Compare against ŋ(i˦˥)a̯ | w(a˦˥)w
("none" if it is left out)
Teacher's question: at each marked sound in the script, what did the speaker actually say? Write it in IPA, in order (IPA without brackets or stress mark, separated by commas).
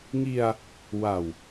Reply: i˧, a˨˩